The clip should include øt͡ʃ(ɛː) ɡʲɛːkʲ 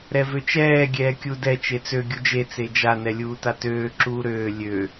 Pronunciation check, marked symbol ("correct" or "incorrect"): correct